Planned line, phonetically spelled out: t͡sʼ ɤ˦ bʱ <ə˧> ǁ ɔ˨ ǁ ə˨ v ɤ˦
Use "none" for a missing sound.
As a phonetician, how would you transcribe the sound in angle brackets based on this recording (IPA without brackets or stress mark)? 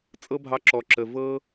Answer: ɑ˧